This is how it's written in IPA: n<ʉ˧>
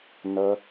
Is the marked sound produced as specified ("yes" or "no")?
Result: no